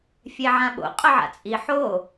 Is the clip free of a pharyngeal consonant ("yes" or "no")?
no